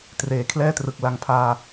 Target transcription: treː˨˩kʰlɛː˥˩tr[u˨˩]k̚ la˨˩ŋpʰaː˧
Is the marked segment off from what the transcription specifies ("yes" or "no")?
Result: yes